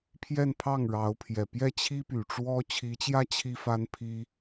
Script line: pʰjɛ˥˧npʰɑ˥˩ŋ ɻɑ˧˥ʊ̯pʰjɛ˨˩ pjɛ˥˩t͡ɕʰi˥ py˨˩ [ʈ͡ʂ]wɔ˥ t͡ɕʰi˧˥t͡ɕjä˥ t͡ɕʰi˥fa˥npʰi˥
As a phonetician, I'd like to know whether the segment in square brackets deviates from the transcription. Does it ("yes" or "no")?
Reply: no